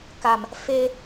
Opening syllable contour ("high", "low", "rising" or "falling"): low